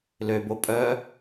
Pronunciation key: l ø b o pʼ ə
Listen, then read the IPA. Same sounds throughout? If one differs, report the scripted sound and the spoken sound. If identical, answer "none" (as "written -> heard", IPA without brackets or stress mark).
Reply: ə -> œ